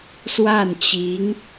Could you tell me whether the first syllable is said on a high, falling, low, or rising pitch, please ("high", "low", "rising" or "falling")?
falling